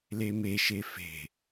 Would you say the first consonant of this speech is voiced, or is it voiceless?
voiced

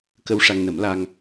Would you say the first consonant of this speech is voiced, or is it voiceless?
voiceless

